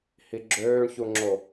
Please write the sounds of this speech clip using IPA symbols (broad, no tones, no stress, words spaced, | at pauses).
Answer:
hiɡ͡ǁøːɳçuŋ͡ǁo